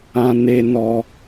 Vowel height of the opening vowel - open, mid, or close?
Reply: open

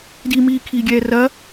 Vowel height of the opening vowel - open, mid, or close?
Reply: close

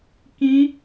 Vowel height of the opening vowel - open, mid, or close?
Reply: close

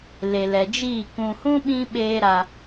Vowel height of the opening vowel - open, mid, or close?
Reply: mid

